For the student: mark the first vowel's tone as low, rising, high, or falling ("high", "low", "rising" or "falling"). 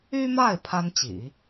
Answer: high